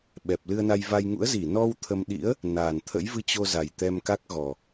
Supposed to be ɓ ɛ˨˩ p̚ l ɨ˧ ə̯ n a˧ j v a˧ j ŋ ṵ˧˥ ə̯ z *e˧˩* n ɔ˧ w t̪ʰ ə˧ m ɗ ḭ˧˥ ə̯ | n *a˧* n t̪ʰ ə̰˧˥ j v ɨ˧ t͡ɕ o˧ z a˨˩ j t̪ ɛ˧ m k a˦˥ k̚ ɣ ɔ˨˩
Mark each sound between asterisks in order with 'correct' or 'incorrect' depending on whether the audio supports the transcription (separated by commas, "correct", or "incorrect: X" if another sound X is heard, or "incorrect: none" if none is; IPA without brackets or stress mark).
incorrect: i˧˩, incorrect: a˨˩